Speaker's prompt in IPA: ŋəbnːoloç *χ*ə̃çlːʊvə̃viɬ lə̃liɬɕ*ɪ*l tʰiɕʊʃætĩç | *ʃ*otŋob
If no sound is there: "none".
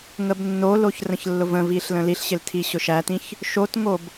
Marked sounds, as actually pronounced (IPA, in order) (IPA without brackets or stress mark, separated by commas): r, ɪ, ʃ